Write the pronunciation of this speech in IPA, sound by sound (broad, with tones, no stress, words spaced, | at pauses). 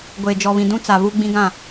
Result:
ɡʷeː˨d͡ʒɔ˨βĩ˨ dũ˦t͡sa˨ βu˦ ɡ͡bĩ˦ɡã˦˨